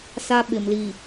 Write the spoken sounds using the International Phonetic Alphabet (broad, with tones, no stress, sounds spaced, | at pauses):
s a˦ ɓ ɪ˨ m l iː˨